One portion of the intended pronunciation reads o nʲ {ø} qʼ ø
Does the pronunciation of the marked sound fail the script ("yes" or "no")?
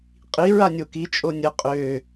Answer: yes